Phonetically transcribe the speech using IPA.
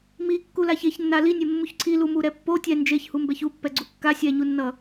m i kː u l a ç e ç nː a l i nʲ e mː u ç ǀʰ i l u m u ɾ ɛ pː o tʲ ɛ n d͡ʒ e ç h u m b ɛ ç u pː ɛ ɡ͡ǀ u kː a sʲ ɛ ɲ u nː ʌ

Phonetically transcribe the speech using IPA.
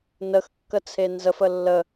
n ə x kː ə t͡sʰ e n z ə f ə lː ə

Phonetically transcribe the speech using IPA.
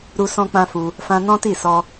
ɾ u˧ s ɔ̃˧ k͡p ã˧ f u˧ | f ã˧ n ɔ̃˦ t i˦˨ s ɔ˧

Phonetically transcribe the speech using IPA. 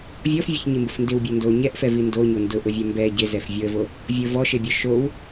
vʲ ɔ f vʲ e ç ɲ i m b ʊ f n d ɪ w bʲ o n d o ɲ ɛ ʔ f ɛ v i n d o ɲ o n d ʊ ʔ ʊ vʲ ɛ m b ɛ ɟ ɪ z ɛ f vʲ o ə̯ v o | vʲ o v ɔ ʃ e bʲ ɔ ʃ o w

